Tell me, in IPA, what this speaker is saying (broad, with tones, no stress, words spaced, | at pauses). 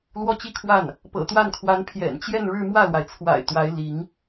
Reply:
lwɔ˥t͡ɕi˥˧kʰwa˥˩n | pɤ̰˨˩t̪wa˥˩n kʰwa˧˥npʰjɛ̰˨˩nt͡ɕjɛ˥˧nɻɻ̩˥˧ mwä˥˩lwa˩ɪ̯t͡sʰwa̰˨˩ɪ̯ t̪wa˧˥ɪ̯ li˧˥ŋ